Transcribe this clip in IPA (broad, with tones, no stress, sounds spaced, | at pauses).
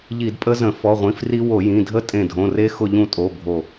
ʎ i˧˩˧ d pʼ ə˦˥ z ə̃˧˩˧ f ɔ˩˧˩ ʁʷ ĩ˩˧˩ f r i˦˥ w o˧˩˧ j ĩ˩˧˩ dʱ ə˥˧ tʼ ẽ˧˩ dʱ õ˩˧˩ r e˦˥ x ʊ˥˧ ʎ ũ˥˧ tʼ o˩˧˩ bʱ o˧˩